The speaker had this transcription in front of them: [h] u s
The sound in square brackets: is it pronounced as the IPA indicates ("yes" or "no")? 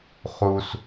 no